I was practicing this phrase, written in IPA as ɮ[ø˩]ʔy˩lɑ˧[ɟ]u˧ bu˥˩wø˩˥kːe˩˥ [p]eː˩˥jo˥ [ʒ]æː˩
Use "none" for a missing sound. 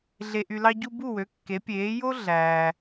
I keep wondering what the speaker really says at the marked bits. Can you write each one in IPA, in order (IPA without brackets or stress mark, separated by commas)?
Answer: e˩, ɟ, pʲ, ɮ